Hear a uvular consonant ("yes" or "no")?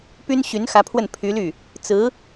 no